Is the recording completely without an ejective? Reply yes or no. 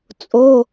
no